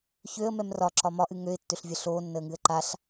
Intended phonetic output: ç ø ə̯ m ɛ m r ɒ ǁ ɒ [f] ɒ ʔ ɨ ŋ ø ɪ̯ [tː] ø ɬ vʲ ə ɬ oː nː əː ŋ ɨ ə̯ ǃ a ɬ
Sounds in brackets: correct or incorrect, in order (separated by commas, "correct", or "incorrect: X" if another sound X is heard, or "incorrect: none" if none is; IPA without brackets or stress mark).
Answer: incorrect: m, correct